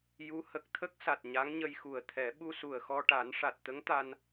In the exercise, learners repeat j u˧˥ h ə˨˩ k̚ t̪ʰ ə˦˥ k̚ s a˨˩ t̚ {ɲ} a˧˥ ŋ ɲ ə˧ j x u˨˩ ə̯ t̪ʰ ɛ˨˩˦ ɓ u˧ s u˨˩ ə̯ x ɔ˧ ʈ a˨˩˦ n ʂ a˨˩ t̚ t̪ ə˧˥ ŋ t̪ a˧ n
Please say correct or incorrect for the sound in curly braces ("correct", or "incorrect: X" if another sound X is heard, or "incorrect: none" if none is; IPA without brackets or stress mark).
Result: correct